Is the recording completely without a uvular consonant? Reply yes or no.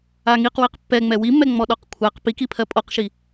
no